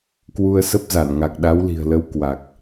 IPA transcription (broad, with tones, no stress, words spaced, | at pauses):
kwu˧ə̯sə˦˥p̚za˧˩n ŋa˨˩k̚ɗa˨˦wli̤˨˩ə̯ lə˨˦w kwa˨˩k̚